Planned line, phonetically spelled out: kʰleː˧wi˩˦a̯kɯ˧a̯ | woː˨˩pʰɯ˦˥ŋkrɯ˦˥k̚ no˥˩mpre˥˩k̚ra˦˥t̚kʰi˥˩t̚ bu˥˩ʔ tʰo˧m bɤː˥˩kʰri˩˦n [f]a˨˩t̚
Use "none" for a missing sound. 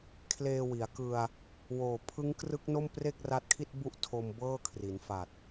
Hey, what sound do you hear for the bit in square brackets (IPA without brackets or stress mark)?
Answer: f